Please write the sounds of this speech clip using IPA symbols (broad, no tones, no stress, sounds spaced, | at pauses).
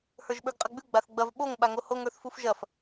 h ə˞ ʒ ɓ ə˞ ɡ qʼ ɐ ɡ͡b ʉ ɡ͡b a θ ɡ͡b ɐ v ɓ o ŋ ɓ a ŋ o h o ŋ ə˞ θ f u f ʒ ɐ f